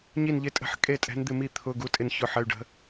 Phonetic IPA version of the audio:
ɲi˥˨nʎɪ˧˥˧tʼə̤˧˥˧ħ kʼe˥˨tʼɛ̤˧˥n d̪ɪ˥˨mi˥˨ t̪ʰʊ˧˥˧ ɡu˧˥˧tʼɪ˥˨nçʊ˧˥˧ ħə˧˥˧y̯ɖə̤˧˥

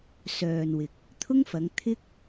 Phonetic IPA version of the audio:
sœː˨nwɪ˨k̚ | t̪ʰʊ˥ŋfɐ˨˧ŋ t̪ʰɪ˥k̚

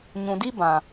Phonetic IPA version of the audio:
ɲũ˨di˦ bã˨

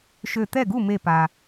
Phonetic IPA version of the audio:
ʃø˧˩t̪ɛ˥˩ɡu˥˩ me˧˩pa˩

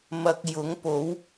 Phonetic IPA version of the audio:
mɐ˧k̚ jʊ˨˥ŋpo˨˥w

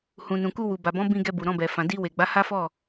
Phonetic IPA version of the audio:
hũ˨nũ˨ ku˧wu˨ba˨bɔ̃˨˦ bĩ˧ ɡɛ˧bu˨ ɾɔ̃˧bɛ˨ fã˨di˧we˨ɡ͡ba˨˦ ha˦fɔ˦˨

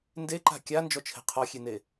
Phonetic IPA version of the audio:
ndeǃa̤ kʲand͡ʒɔt͡ʃʰe̤ qʰɔxʲene

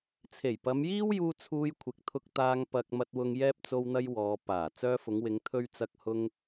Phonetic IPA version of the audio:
t͡sʰe˨˩jpɐ˨˧mjiː˥wjuː˧ t͡sʰuː˧jkʷʰɪ˨k̚t̪ʰʊ˧k̚t̪aː˧ŋ pɐ˧k̚ mɐ˧t̚wʊ˧ŋ jɛː˥p̚ t͡so˥wn̪ɐ˥j wɔː˨ paː˨˩ t͡sœː˧fʊ˨˧ŋwɪ˨˧ŋ t̪ʰɵ˥ɥt͡sɐ˥k̚ hʊ˥ŋ

